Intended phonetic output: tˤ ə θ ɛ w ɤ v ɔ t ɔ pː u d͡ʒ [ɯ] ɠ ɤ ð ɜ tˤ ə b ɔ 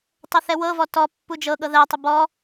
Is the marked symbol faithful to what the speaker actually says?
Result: no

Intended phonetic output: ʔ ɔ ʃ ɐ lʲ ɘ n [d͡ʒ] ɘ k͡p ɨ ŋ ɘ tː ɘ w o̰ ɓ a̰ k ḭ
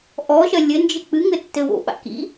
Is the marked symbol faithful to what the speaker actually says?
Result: yes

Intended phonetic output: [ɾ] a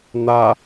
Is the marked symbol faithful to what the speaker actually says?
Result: no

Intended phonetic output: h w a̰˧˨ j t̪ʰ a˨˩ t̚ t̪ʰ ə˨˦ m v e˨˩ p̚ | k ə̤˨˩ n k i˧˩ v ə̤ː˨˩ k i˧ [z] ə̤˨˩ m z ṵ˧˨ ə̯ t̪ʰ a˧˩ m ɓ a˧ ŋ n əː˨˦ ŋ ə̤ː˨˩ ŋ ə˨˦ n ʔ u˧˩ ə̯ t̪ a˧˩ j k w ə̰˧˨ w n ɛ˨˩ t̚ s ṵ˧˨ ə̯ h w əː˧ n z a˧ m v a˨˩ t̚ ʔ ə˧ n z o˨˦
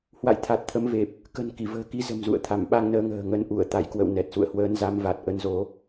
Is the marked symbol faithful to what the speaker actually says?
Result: yes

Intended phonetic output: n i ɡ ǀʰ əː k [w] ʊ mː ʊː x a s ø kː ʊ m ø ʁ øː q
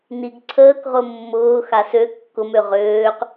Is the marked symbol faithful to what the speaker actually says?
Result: no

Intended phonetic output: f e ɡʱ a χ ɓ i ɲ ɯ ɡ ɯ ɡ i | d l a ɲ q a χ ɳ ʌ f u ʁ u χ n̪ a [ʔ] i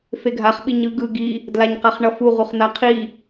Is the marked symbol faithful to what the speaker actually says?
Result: no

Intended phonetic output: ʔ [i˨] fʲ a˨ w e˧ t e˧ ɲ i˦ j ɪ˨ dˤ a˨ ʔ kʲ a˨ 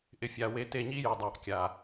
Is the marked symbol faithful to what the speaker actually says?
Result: no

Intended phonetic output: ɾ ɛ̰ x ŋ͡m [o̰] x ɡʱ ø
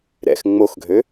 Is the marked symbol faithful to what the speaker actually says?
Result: no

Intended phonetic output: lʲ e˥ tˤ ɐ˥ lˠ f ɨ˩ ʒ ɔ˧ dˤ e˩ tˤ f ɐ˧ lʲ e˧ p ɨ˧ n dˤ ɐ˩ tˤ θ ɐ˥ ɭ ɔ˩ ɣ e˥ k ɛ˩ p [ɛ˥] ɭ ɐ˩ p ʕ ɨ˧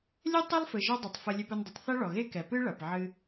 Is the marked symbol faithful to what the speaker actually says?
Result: no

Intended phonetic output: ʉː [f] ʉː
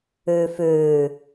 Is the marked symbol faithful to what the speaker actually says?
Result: yes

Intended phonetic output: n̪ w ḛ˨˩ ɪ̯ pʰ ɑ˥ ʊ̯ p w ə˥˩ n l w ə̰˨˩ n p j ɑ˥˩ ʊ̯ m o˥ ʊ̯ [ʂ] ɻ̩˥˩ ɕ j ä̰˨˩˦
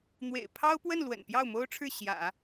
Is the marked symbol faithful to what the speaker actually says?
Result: no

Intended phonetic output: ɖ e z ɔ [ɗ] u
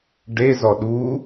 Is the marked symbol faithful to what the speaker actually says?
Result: yes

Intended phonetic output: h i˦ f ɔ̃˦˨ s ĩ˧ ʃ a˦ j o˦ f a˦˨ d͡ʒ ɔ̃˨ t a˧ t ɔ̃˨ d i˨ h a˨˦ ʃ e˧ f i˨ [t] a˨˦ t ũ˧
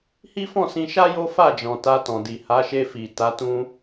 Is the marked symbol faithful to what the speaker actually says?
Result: yes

